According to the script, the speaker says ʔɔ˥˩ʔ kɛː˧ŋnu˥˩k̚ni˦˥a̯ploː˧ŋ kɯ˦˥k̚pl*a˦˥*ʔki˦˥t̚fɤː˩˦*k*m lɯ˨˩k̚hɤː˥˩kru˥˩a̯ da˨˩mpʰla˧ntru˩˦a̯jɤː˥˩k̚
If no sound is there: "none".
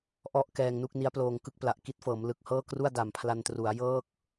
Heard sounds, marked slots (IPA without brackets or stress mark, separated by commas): a˨˩, none